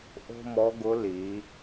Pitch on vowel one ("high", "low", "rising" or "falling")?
high